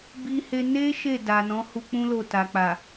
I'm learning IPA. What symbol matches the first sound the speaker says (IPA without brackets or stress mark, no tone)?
b